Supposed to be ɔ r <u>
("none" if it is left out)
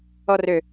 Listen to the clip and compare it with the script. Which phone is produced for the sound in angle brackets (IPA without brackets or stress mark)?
ø